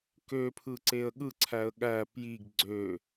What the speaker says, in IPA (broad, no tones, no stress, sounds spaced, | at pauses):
k ø pʰ ɯ ǀ e ə̯ ɠ ɯ ǀʰ æ ə̯ ɠ æ p j i ɡ ɡ͡ǀ ø